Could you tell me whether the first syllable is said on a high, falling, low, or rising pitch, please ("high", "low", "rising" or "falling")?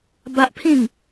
high